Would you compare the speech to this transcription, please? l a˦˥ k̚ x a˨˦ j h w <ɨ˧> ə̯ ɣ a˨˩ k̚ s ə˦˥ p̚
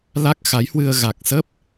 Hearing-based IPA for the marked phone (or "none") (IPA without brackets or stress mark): ɨ˧